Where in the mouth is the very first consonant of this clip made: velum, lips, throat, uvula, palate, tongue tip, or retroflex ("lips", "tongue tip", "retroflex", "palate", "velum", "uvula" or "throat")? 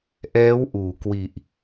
throat